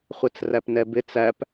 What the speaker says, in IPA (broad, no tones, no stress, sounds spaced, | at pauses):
χʷ ɛ t͡s r æ p n ɛ b ɪ t͡s æ p